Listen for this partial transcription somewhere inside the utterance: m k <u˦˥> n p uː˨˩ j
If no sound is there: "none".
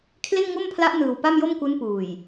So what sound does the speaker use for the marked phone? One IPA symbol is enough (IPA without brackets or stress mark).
u˦˥